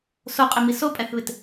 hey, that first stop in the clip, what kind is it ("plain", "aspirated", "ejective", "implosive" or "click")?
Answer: ejective